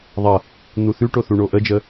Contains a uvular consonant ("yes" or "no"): no